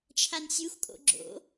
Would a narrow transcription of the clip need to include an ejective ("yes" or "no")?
yes